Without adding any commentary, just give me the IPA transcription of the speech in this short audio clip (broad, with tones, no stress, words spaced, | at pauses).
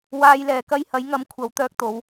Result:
waː˧jlɛː˨ kɐ˧jhɐ˨˧j ŋɐ˨˥m kʷʰɐ˨˧wt̪œː˧k̚t̪o˨˧w